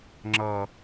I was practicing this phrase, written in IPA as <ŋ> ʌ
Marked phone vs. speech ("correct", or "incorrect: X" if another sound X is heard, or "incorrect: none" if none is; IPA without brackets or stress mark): incorrect: ŋ͡ǁ